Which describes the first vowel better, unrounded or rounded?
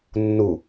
rounded